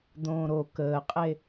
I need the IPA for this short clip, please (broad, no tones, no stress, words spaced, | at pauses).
d̪õːɾo kəːqʼe